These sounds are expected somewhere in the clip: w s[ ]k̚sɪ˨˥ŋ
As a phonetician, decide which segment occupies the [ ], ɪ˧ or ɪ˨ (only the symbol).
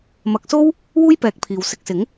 ɪ˧